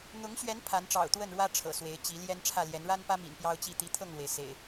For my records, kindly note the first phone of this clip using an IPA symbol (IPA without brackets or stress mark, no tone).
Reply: n̪